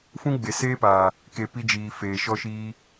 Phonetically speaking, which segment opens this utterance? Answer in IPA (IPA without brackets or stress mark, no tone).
f